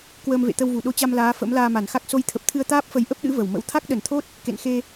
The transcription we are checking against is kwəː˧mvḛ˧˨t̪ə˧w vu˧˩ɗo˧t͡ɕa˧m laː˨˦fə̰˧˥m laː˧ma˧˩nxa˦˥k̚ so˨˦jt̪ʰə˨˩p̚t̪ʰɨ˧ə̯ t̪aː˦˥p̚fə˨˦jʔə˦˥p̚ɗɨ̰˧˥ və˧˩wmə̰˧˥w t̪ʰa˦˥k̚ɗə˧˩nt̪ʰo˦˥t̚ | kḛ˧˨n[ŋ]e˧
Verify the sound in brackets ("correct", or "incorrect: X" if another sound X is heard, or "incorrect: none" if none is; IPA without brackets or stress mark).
incorrect: x